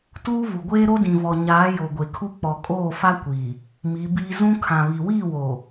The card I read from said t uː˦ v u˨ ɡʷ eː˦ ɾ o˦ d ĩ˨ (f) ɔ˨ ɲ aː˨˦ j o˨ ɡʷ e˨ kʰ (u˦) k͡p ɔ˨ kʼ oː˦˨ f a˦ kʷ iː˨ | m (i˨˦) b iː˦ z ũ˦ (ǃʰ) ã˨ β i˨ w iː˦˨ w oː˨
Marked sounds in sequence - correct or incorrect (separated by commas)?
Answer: incorrect, correct, correct, incorrect